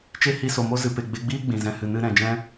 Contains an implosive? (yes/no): no